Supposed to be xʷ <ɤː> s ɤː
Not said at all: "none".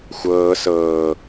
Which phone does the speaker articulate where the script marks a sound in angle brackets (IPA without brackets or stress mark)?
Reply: ɤː